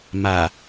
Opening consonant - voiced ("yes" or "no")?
yes